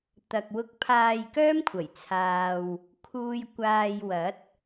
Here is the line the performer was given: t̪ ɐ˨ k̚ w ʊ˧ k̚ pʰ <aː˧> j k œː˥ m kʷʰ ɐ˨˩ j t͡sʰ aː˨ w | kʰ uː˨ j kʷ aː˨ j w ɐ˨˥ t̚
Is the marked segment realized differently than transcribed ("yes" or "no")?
no